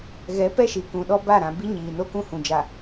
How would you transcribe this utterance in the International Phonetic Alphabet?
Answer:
ɣɛ˨˦ pɛ˦ʃi˨kũ˨ɗɔ˦ ba˦˨ɾã˨ bi˦ɲiː˨no˦kũ˦ hũ˨ d͡ʒa˨

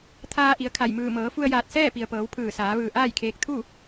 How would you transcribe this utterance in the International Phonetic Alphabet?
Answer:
t̪ʰaː˧ʔi˩˧ə̯kʰa˧˩jmɯː˧˩ mɤː˩˧fu˧ə̯jaː˧˩t̚ sɛː˥˨pi˩ə̯pɤː˩˧w pʰɯː˧˩saː˩˧ʋɯː˧˩ ʔaː˥˨jkʰeː˧k̚ t̪ʰu˥˨

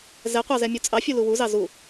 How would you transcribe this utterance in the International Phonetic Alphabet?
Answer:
zɛqʷɑzɛmʲu t͡sʼɑfʲulu wuzɑ zu

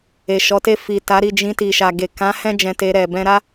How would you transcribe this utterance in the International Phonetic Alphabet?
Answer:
e˨ʃɔ˨˦te˦˨ fi˨ ta˨˦ɾi˦˨ d͡ʒĩ˧ti˨ʃa˨ɡe˨ kã˨˦ hɛ̃˦ d͡ʒɛ̃˧te˧ɾɛ˨ bɛ̃˧ɾa˦

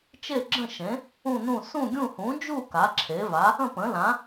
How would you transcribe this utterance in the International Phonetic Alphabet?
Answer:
t͡ʃe˥˧ɡ͡ǁə̃˥˧ʃẽ˨˥ | ũ˥˧nũ˥˧ sũ˥˧ɡʲũ˥˧ hũ˨˥ d͡ʒu˥˧ ka˨˥ǁʰe˨˥ va˨˥ | ə̃˥˧pə̃˨˥lã˨˥

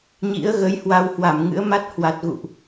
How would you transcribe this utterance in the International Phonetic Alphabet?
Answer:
ɲḭ˧˥ə̯ɣə˨˦j hwa˧whwa˧˩mŋɨ̰˧˥ə̯ma˦˥t̚ hwa˨˩t̚ɣṵ˧˨ʔ

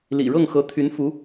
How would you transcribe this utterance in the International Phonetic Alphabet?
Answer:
lḭ˨˩ɻɤ˥˩ŋxɤ˧˥ t̪ʰy˧˥nfu˧˥

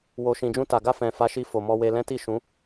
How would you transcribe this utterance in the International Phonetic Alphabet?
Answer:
wo˨ʃĩ˨d͡ʒũ˧ ta˨ɡa˧ fɛ̃˨fa˨˦ʃi˧ fo˨mɔ˧we˧ lɛ̃˦ ti˦˨ ʃũ˨˦

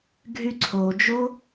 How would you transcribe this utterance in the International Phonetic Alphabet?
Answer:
ɡʱyǀʰod͡ʒo

